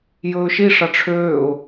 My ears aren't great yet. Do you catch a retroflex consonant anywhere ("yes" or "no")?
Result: yes